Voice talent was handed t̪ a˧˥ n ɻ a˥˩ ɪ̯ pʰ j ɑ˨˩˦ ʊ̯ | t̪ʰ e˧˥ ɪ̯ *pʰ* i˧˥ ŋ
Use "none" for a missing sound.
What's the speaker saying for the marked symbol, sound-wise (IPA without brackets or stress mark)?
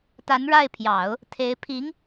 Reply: pʰ